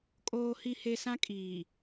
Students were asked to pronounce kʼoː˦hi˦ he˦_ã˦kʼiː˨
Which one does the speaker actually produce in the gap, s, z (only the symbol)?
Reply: s